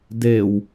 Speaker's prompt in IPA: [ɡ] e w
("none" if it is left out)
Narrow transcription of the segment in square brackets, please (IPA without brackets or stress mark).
d